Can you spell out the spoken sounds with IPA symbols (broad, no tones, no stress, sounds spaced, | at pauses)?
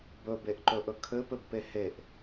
b ɵ b e ʔ ǃ ɵ ʔ ɵ kʰ ɘ p ɘ b p e h e ʔ